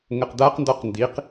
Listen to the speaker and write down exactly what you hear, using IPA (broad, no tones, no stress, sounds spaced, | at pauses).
ŋ ə q d̪ a q n d ɔ q n d i q